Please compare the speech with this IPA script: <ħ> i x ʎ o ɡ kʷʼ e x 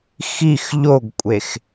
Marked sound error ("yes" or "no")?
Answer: yes